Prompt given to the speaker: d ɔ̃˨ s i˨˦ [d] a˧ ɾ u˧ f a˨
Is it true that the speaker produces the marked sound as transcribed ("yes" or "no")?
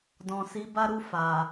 no